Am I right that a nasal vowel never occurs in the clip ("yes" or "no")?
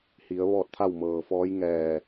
yes